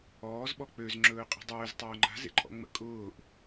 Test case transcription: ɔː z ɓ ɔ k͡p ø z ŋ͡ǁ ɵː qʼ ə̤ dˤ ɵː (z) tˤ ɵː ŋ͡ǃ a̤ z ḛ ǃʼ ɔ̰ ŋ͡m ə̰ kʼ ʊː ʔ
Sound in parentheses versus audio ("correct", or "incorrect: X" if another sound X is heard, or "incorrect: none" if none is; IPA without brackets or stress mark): correct